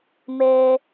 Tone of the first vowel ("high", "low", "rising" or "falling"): high